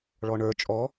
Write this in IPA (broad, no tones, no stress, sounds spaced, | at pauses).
ɭ ɔ ɳ ə˞ t͡ʃʼ ɔ